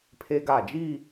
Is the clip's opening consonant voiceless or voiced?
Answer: voiceless